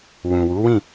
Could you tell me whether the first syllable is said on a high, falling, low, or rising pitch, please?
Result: low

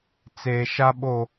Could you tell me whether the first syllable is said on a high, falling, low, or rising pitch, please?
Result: low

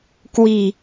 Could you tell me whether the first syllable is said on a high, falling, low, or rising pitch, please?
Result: low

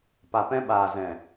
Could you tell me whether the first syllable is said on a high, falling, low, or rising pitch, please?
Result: low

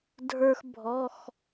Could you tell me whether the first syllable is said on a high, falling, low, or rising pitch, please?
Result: high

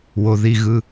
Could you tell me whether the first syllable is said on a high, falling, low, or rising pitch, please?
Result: low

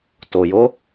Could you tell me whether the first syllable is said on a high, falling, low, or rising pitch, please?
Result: low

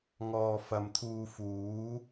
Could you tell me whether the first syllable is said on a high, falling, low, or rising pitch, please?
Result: low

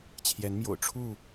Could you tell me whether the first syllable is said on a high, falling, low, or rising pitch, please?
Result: rising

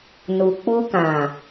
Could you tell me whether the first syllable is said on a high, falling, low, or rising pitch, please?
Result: low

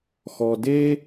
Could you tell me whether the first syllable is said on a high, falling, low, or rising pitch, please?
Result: low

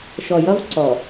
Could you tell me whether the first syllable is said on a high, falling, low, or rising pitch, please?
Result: low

